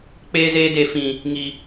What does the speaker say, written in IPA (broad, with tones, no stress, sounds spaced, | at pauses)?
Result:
k͡p eː˧ z eː˧ d e˨ f ĩ˨ | ŋ i˨